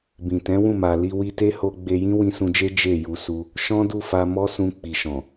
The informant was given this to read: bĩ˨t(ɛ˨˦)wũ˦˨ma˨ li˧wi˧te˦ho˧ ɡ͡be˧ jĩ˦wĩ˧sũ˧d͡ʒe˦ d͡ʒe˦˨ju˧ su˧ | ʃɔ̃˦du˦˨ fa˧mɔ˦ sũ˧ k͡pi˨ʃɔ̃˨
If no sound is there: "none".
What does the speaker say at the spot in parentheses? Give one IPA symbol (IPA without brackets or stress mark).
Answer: ɛ̃˨˦